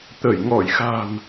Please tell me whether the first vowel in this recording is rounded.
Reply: no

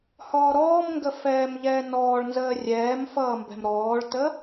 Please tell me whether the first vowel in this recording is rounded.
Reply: yes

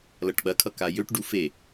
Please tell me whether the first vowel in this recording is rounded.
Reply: no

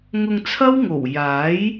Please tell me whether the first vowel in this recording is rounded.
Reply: yes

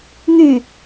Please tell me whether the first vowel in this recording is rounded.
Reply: yes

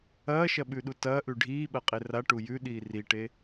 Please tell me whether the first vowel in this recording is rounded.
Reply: no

